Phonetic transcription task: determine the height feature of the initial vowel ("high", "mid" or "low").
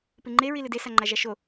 high